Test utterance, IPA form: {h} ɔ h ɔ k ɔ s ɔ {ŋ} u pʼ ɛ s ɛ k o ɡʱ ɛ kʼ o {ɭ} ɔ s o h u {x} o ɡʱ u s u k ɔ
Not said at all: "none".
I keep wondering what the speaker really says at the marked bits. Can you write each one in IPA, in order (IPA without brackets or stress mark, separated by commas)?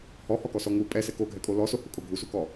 h, ŋ, l, kʼ